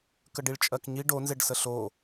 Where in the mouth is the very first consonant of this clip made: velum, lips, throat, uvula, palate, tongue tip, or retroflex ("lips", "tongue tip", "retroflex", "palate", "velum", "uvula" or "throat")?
velum